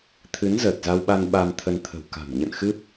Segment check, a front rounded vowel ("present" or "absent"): absent